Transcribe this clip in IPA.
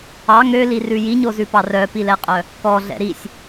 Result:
ɑ ŋ ø l i r ʉ j i ɲ o z ʉ p ɑ r œ p i l ɛ qʼ œ | k ɔ ɮ ɛ̰ ɾ i sʲ

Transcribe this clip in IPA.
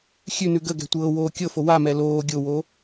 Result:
xʲ ʉ n ʉ ɡ ə ɡ ɛ̤ tʷ ɤː w oː kʲ ɤ f o w a m ɛ l oː ɡʲ o w o

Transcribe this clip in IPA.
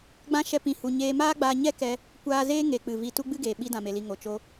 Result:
ɡ͡b ã˦ ʃ ɛ˦ p ĩ˧ h u˧ ɲ eː˧ m aː˦ ɡ͡b aː˧ ɲ ɛ˦ k ɛ˧ | kʷ aː˧ z eː˦ ŋ e˨ k͡p ɨ˨ v i˧ t u˦ ɡ͡b ɨ˦ ɡ eː˨ ɓ i˧ d ã˨ m e˨ l i˨ ŋ o˨ t͡ʃ o˧

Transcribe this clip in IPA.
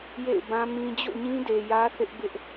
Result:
j ḛ˦˨ ɪ̯ b ã˦ m ĩ˦ d͡ʑ o̰˦˨ ɲ ĩ˦ d e˨ j ä˦ θ ɪ˦ ʔ b ɪ˦ ʔ

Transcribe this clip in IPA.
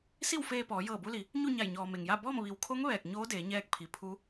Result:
s i˥˨ w f eː˧ p ɔː˩˧ j ɤː˧˩ b u˧ l i˩ | ɲ u˥˨ ɲ a˧˩ j ɲ ɔː˩ m e˩ ŋ j a˥˨ b ɔː˥˨ m ʋ i˩ w kʰ o˧˥ ŋ ʋ ɛː˧˩ k̚ ɲ oː˧˥ d eː˩˧ ɲ ɛː˧ k̚ pʰ i˩ pʰ u˧˥

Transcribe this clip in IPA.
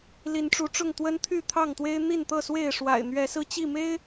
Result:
l i˨˦ n ʈ͡ʂ u˨˦ ʈ͡ʂ ʊ˥˨ ŋ t̪ w ə˦ n t̪ʰ y˥˨ t̪ʰ ɑ˥˨ ŋ t̪ w e˦ ɪ̯ n̪ i˥˨ n t̪ ɤ˥˨ s w e˥˨ ɪ̯ ʂ w a̰˨˩ ɪ̯ n̪ ɥ ɛ˨˦ s ɹ̩˧ t͡ɕ i˥˨ m e˦ ɪ̯

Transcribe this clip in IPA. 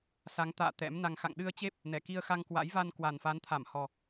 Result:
s a˨˦ ŋ t̪ a̰ː˧˨ t̪ ɛ̰˧˥ m n a˧ ŋ x a̰˧˨ ŋ ɗ ɨ˧ ə̯ t͡ɕ e˦˥ p̚ | n ɛ˧˩ k i˧ ə̯ x a˧ ŋ k w a̰˧˥ j v a˧ n k w a˨˩ n f a˨˦ n t̪ʰ a˧˩ m h ɔ˨˩

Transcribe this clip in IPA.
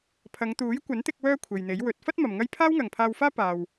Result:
pʰ ɐ˨˧ ŋ t̪ uː˨˥ j kʷ ɐ˨˥ n t̪ ɪ˧ k̚ w œː˥ kʷʰ e˨ j n̪ e˨˥ j w ɵ˨˥ t̚ f ɐ˥ t̚ m ɐ˨ m ŋ ɐ˥ j pʰ aː˥ w ŋ ɐ˨ ŋ pʰ aː˧ w f aː˥ p aː˨ w

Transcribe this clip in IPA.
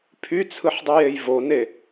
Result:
pʰ y t͡sʰ ɯ ħ dˤ i j e j v o n e

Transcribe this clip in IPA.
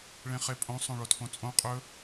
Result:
ɭ ẽ χ e pʼ õ sˤ õ ɭ o tʰ õ t͡sʼ õ qʼ ɵ

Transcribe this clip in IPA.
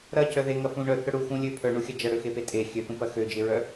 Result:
ɾ ɐ c œ ð e ŋ ɐ f ũ ɳ œ θ œ ɽ u x ũ lʲ ø pʰ œ ɳ u xʲ ɐ d͡ʒ ɐ ɽ ø x e p e tʼ e xʲ ø θ ũ p ɐ x ø d͡ʒ e ɹ œ

